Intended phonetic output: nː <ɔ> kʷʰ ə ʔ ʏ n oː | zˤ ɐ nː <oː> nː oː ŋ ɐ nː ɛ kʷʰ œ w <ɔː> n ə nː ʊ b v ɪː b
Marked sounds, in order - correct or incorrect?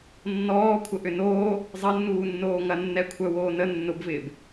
incorrect, incorrect, incorrect

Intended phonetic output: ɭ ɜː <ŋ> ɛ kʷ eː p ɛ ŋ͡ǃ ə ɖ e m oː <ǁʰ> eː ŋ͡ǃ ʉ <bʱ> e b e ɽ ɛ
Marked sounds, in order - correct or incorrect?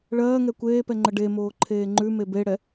correct, incorrect, incorrect

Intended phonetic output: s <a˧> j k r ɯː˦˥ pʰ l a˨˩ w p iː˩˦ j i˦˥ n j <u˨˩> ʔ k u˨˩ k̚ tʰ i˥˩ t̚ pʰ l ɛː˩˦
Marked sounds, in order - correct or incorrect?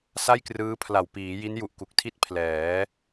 incorrect, correct

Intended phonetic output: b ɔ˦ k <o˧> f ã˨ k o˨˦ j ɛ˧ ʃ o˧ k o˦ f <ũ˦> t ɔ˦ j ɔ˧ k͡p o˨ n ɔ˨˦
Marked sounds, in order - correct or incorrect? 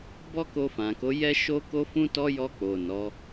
correct, correct

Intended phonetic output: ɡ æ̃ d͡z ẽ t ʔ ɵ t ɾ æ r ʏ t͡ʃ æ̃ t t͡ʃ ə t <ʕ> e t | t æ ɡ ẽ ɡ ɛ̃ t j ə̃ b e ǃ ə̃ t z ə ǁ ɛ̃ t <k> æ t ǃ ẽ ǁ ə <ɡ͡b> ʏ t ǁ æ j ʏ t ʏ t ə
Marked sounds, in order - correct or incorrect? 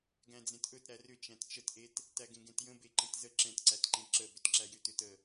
incorrect, incorrect, incorrect

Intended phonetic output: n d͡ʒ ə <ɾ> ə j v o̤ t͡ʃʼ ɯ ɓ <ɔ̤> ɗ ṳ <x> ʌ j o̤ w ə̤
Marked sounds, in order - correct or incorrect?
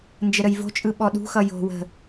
correct, incorrect, correct

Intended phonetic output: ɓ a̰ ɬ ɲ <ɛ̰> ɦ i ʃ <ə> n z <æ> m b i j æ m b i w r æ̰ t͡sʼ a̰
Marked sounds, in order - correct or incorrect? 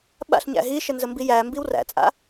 incorrect, correct, incorrect

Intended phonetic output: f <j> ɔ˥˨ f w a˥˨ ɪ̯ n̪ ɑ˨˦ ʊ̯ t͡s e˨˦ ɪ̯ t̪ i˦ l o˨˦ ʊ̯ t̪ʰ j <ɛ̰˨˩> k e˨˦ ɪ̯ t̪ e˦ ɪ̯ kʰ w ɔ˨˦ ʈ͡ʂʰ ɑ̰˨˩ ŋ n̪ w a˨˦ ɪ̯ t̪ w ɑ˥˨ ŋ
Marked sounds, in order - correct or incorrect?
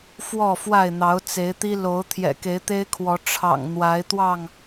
incorrect, correct

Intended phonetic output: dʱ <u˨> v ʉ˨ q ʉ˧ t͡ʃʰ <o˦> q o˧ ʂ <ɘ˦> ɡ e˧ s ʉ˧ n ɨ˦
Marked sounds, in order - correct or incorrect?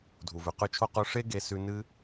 correct, correct, incorrect

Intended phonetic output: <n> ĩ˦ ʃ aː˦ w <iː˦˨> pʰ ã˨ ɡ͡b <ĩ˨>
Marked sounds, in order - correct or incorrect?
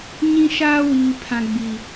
incorrect, incorrect, incorrect

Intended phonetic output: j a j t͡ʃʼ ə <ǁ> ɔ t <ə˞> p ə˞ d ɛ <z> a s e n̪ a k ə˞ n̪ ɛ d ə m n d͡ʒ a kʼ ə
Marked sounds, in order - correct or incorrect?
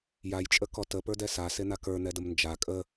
incorrect, incorrect, incorrect

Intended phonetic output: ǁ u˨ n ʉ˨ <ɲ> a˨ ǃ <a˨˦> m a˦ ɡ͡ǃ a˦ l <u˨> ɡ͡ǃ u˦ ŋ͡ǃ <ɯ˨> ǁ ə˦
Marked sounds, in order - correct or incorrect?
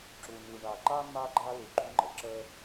incorrect, incorrect, correct, incorrect

